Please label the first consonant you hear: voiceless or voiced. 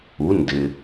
voiced